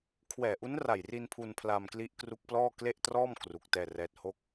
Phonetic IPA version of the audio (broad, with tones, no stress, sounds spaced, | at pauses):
kʰ w ɛː˨˩ ʔ u˦˥ n r a˨˩ j r i˧ n pʰ u˧ n pʰ l a˧ m k l i˦˥ ʔ k r u˦˥ k̚ p l ɔː˥˩ k l e˥˩ ʔ t r ɔː˥˩ m k r u˦˥ k̚ t ɛː˥˩ r ɛː˥˩ t̚ h o˥˩ k̚